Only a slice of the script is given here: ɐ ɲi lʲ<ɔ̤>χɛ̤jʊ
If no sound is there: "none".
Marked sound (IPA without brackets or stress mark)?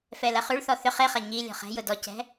ɔ̤